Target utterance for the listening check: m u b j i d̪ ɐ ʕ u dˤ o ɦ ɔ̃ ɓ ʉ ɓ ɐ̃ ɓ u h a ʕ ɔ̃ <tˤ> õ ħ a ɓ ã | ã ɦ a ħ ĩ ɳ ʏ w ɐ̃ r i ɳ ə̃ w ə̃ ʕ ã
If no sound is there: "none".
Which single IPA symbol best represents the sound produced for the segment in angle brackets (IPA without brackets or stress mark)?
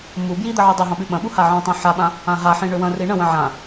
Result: tˤ